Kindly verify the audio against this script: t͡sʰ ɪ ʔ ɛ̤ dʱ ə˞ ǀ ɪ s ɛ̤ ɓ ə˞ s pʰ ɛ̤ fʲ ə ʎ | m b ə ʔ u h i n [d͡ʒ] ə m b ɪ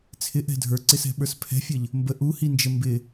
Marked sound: correct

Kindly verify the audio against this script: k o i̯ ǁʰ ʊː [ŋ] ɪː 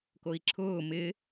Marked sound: incorrect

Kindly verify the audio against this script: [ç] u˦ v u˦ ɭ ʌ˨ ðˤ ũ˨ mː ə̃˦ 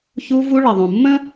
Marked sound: correct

